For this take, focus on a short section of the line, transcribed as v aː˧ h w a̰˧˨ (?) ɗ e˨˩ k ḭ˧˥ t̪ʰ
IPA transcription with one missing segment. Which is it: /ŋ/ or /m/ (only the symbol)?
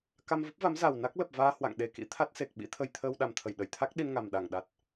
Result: ŋ